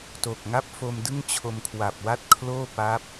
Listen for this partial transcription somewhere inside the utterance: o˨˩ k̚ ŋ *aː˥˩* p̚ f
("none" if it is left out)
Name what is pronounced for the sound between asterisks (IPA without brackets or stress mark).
a˥˩